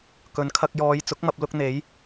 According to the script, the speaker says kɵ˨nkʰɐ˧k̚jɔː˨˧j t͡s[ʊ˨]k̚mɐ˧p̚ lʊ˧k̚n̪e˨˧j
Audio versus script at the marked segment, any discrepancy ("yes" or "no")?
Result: yes